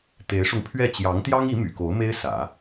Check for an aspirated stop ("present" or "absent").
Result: present